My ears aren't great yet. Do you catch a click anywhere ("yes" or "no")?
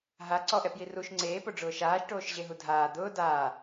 yes